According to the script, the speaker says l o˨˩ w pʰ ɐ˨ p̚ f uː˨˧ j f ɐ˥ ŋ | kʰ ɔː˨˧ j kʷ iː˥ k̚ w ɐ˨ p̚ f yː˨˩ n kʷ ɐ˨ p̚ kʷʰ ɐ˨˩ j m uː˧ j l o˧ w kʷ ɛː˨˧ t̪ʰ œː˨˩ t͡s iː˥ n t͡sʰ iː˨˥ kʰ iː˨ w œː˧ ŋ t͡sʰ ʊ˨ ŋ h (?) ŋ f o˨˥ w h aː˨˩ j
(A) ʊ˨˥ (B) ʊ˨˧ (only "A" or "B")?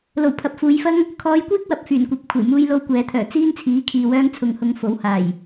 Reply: B